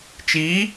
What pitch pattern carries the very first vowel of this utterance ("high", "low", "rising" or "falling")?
rising